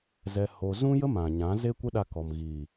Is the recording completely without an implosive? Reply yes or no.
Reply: no